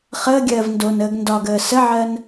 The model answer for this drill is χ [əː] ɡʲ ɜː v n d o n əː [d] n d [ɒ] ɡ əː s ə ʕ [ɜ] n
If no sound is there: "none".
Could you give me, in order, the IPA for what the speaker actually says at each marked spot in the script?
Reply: əː, ɡ, ɒ, ɜ

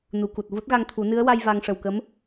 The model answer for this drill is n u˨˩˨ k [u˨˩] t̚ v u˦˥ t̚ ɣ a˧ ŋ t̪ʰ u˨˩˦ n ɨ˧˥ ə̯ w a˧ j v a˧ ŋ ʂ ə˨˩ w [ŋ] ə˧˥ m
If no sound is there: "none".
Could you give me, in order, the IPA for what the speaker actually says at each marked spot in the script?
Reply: u˨˩, k

